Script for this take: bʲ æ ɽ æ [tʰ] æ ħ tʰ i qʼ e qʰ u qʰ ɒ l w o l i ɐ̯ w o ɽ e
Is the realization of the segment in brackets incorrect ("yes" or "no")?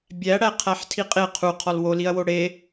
yes